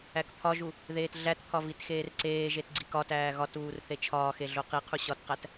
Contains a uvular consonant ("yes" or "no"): yes